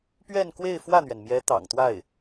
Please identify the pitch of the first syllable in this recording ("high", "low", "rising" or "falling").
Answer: falling